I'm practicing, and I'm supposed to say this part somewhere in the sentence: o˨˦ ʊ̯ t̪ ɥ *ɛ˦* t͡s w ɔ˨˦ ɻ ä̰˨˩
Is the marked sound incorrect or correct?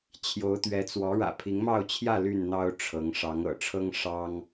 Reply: incorrect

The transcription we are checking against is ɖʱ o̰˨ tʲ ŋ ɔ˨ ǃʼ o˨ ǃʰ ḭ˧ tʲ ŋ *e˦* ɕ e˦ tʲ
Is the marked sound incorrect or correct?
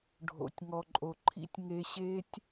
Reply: incorrect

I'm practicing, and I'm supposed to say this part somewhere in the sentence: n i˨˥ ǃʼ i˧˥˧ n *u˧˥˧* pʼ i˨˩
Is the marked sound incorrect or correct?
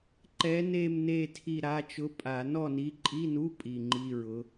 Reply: correct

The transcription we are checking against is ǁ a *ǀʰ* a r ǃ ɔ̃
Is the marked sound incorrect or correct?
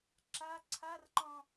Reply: correct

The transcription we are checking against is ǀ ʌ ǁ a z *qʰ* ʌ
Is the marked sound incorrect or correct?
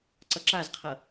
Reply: correct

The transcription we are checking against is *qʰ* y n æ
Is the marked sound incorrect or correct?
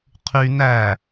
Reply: correct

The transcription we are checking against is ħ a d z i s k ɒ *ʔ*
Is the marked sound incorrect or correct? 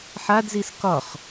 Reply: incorrect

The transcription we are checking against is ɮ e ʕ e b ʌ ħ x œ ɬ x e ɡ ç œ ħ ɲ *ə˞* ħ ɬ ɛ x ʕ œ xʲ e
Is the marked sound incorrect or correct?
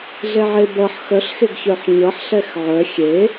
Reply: incorrect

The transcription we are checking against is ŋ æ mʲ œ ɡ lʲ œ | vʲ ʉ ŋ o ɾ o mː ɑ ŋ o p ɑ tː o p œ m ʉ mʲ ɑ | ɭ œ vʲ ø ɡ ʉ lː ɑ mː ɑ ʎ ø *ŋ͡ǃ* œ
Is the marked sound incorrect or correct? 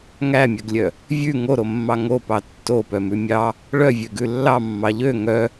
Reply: incorrect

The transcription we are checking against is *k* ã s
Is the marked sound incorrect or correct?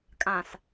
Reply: incorrect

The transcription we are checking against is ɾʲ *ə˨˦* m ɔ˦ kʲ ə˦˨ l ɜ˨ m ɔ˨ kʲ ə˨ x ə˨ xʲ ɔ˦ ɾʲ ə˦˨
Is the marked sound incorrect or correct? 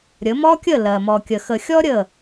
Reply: correct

